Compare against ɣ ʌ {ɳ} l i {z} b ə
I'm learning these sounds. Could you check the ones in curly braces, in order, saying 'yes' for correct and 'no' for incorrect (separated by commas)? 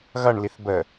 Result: yes, no